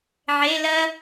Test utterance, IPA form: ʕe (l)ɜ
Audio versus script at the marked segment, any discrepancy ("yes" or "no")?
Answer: no